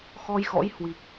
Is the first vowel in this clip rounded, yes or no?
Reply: yes